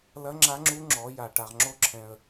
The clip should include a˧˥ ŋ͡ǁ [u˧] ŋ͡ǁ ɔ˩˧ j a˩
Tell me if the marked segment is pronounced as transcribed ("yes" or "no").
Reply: no